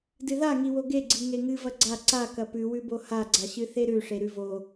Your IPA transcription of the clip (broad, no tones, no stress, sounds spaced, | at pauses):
d ɨ ð a ŋ i w o ɡ e ɡ͡ǀ i ŋ e ŋ ɨ v ɐ ɡ͡ǀ a ǀ a k ɐ p ʉ w ʉ b o h a ɡ͡ǀ a ɕ ɨ θ e ɾ ʉ ʂ e ɾ ʉ v o